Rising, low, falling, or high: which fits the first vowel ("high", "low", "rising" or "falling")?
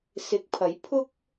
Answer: rising